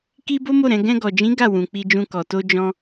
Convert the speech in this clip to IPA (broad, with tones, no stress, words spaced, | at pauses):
ki˦bo˦mo˦˨ɾɛ̃˧ ɡɛ̃˧ɡɔ˨d͡ʒĩ˨˦ ɡa˦˨wũ˨ k͡pi˧d͡ʒũ˧kɔ˨ to˧d͡ʒɔ̃˧